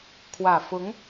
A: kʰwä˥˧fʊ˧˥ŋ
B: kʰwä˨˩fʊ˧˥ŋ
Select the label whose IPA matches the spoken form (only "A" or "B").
B